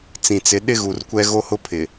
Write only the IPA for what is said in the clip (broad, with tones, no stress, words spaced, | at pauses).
t͡sĩ˨t͡sɪ˨˦ ɗɪ˦ɣu˨rkʷɛ˦ ɣo˦hʊ˦pʰɪ˨